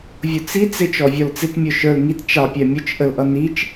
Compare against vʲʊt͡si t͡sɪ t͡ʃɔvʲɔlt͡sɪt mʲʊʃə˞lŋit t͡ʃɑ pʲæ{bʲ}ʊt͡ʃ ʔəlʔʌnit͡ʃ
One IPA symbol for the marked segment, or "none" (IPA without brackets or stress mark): mʲ